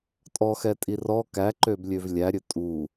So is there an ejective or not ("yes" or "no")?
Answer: yes